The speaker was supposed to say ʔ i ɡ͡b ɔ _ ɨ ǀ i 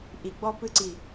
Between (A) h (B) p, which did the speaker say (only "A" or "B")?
B